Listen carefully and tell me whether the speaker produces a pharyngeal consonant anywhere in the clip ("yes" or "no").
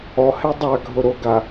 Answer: no